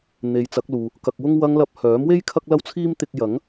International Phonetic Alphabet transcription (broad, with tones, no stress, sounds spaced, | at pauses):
n̪ e˨˧ j t͡s ɐ˨˥ k̚ l uː˨ | k ɐ˧ k̚ w ʊ˥ ŋ w ɐ˧ ŋ l ɐ˧ p̚ h œː˨˥ m w e˥ j kʰ ɐ˥ k̚ l ɐ˥ w t͡sʰ iː˥ m t̪ ɪ˧ k̚ j ɐ˨˥ ŋ